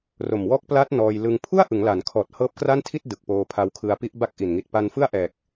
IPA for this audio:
r o˨˩ m w ɔː˦˥ k̚ p l a˦˥ t̚ n ɔː˧ j l ɯ˧ ŋ pʰ u˥˩ a̯ ʔ ɯ˩˦ ŋ l a˩˦ n kʰ ɔː˨˩ t̚ h ɤː˦˥ p̚ k r a˥˩ n tʰ i˥˩ t̚ d ɯ˨˩ k̚ p oː˧ pʰ a˧ w kʰ ɯ˧ a̯ p i˦˥ ʔ b a˥˩ k̚ ʔ i˨˩ n ŋ i˨˩ t̚ p a˧ n f ɯ˥˩ a̯ ʔ ɛː˨˩ k̚

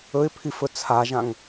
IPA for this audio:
ɵ ɪ̯ pʰ i f ɵ t͡sʰ a ʒ ã ŋ

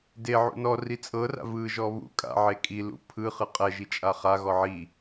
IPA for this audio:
d e ʕ ṵ n ɔ r i t͡sʼ ɤ r a̰ v ɯ ʒ ɔ β ṵ kʼ a̰ ʕ e kʼ i l ṵ pʰ ɯ χ ɯ qʼ ɛ ʒ i t͡ʃʼ a χ a ɣ ɔ ʕ i

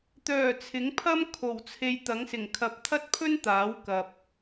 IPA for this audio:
t̪ œː˨˩ t͡sʰ ɪ˨˥ ŋ pʰ ɐ˥ m kʰ o˨˩ w t͡sʰ e˨ j t̪ ɐ˨˥ ŋ s ɪ˨˩ ŋ kʰ ɐ˨ p̚ t̪ʰ ɐ˥ t̚ pʰ ɵ˥ n t̪ aː˨˥ w k ɐ˨ p̚

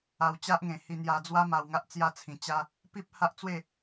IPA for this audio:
a˧ w t͡ɕ a˦ ʔ ŋ ẽ˨˩ h i˧ n̪ j a˧ d͡z w a˦ m a˧ w ŋ a˦ ʔ t͡s j a˥˧ t͡sʰ ĩ˨˩ t͡ɕ a˦ | p i˦ p̚ h a˦ ʔ t͡s w e˥˧

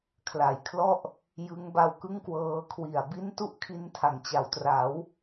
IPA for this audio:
kʰ l a˨˩ j kʰ l ɔ˥˩ ʔ | j ɯ˦˥ ŋ b a˦˥ w k ɯ˥˩ ŋ k w ɤː˧ kʰ w i˨˩ a̯ b i˦˥ n t u˦˥ ʔ kʰ i˧ n tʰ a˩˦ ŋ t͡ɕ a˩˦ w t r a˩˦ w

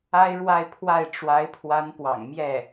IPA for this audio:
a˥ ɪ̯ ɻ w a˥˧ ɪ̯ pʰ w a˥˩ ɪ̯ ʈ͡ʂ w a˧˥ ɪ̯ pʰ w a˧˥ n p w ɑ̰˨˩ ŋ m j ɛ˥˩

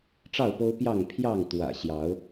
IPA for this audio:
ʈ͡ʂ ɑ˥˨ ʊ̯ p o˦ ʊ̯ p j ɑ˥˨ ŋ pʰ j ɑ˥˨ ŋ t̪ w ä̰˨˩ ɕ j ɑ˨˦ ʊ̯

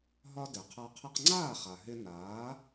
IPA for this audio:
ɦ ɒ˧ d ɛ˩ qʰ a˧ qʰ ɛ˧ q ŋ͡ǀ aː˥˩ χ a˩ ɦ ɪ˧ n aː˩˥

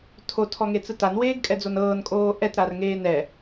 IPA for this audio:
tʰ o tʰ ɔ ŋ e t͡s ɯ t a n w eː ɡ kʼ ɛ d͡z o n ɤː n kʼ oː ʔ ɛ t ɾ a r ŋ eː n ɛ

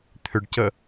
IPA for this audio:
t̪ʰ ʏ ɖ c ə

